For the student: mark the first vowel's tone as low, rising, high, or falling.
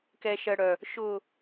high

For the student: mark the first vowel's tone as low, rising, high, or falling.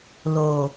low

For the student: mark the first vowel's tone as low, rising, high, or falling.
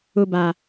low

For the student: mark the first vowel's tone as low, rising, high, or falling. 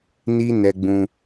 high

